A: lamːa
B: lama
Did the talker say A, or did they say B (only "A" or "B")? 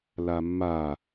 A